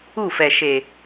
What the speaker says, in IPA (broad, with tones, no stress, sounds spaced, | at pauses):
u˦˨ f ɛ˨ ʃ e˨